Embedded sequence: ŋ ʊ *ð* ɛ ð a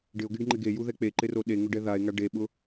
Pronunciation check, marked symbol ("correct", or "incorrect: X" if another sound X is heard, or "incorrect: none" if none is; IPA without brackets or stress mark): incorrect: ɖ